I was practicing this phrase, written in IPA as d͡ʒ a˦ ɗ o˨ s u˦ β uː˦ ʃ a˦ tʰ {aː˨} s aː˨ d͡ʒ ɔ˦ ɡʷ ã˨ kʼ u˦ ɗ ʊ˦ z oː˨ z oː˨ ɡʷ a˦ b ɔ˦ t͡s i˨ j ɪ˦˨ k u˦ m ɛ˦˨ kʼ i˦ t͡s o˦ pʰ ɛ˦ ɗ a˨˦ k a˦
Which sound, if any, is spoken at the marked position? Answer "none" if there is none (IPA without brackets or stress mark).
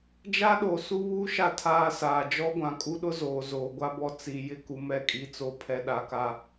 aː˦